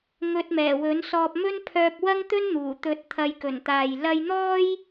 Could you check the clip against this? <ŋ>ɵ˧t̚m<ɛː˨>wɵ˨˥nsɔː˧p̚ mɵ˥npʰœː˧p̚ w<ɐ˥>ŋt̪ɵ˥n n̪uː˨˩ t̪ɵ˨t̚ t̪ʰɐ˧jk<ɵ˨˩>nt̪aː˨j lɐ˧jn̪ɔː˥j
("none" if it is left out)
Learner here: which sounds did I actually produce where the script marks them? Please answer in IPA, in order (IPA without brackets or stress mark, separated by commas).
ŋ, ɛː˨˩, ɐ˥, ɵ˨˩